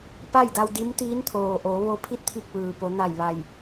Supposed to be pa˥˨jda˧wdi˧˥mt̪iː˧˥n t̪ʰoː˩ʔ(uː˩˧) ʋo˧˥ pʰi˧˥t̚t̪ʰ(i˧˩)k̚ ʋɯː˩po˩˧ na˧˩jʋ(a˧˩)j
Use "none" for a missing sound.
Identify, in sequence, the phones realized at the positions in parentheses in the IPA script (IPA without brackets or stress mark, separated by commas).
oː˩˧, i˧˩, a˧˩